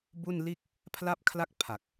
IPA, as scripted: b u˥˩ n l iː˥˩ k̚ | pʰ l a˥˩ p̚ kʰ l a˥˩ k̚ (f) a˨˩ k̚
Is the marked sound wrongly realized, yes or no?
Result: yes